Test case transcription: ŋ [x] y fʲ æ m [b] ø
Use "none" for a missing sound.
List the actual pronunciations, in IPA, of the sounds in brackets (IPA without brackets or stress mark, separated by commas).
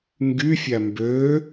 ɡ, b